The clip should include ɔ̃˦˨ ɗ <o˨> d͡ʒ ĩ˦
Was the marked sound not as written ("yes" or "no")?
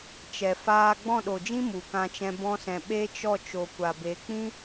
no